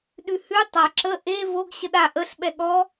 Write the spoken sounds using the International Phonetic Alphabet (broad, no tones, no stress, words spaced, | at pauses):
ɗʉhʉ tˤa ǁə ʔe voɡ ɕəɗa ʔəɬ ɓɛɠɔ